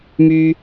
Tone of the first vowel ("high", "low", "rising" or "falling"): high